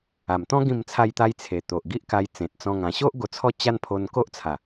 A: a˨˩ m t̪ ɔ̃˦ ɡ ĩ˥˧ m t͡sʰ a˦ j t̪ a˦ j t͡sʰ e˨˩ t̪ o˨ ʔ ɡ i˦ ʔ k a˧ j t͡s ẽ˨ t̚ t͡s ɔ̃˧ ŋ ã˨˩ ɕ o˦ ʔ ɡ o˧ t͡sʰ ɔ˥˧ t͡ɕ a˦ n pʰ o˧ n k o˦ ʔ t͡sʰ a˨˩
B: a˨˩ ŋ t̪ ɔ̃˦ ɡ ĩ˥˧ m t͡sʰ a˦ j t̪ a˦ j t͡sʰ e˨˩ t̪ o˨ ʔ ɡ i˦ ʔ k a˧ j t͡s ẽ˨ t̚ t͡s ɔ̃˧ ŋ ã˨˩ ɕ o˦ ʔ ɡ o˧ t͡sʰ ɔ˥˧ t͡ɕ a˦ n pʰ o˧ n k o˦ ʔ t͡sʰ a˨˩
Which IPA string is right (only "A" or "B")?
A